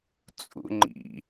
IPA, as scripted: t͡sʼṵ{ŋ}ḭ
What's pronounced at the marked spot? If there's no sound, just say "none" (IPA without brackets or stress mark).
ŋ͡ǃ